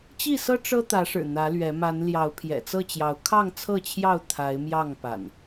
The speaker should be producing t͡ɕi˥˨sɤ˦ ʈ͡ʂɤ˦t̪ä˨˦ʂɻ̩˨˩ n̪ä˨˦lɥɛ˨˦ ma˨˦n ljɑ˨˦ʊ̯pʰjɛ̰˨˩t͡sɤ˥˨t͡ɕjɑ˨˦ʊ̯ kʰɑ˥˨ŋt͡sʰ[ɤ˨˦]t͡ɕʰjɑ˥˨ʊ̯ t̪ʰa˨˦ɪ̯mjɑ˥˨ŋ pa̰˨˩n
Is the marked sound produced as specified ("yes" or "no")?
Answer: no